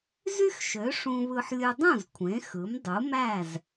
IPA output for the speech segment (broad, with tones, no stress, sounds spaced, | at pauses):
z y˥ x ʃ ø˩˥ ʂ ũ˧ β ɯ˧ ħ lʲ ɯ˧ dˤ ũ˥˩ z kʷʰ ẽ˩˥ x ɯ˩˥ m dˤ u˩˥ m æ˥˩ z